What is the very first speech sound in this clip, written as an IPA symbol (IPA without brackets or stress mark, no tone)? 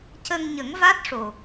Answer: c